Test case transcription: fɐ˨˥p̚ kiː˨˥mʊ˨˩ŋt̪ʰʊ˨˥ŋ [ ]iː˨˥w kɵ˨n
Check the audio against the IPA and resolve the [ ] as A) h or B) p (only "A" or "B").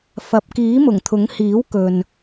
A